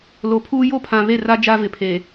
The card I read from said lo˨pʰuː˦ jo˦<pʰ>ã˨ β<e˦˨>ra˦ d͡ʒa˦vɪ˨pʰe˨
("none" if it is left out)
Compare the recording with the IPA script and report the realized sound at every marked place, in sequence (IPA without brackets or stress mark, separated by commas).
pʰ, e˦˨